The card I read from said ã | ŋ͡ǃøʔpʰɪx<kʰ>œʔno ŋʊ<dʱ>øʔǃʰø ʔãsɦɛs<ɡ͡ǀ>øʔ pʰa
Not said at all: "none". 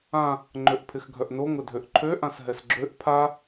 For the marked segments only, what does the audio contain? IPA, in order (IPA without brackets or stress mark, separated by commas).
ɡʱ, dʱ, ɡ͡ǁ